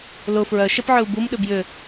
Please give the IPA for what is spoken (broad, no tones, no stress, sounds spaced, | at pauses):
l ʊ f ɹ œ ʃ ɛ p ʕ ʏ u̯ b u m ɗ ʏ b j ʏ